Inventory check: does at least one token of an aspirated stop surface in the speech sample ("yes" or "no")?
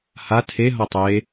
yes